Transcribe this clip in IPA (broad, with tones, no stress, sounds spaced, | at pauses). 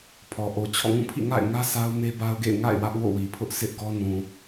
pʰ ɔ˨ ʔ o˨ t͡ɕʰ ɔ̰˦˨ ŋ ũ˦˨ pʰ ḭ˦˨ ŋ a̰˦˨ ɪ̯ ŋ ä˦ sʰ a˦ ʊ̯ m e˦ b a˦ ʊ̯ ɡ ḛ˦˨ ɪ̯ ŋ a̰˦˨ ɪ̯ w ä˦ ʔ w o̰˦˨ w i˨ pʰ ʊ˦ ʔ sʰ ɪ˦ ʔ ɡ ɔ˦ n ũ˨